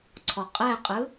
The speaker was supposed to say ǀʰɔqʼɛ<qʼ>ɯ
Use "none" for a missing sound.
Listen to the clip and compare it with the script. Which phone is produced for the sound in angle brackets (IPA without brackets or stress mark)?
qʼ